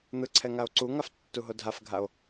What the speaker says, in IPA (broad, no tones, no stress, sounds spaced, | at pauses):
n̪ ɯ ǀʰ ɛ ŋ a o̯ ǀ u ŋ a f tː u ɦ o dʱ a f ɡʱ a o̯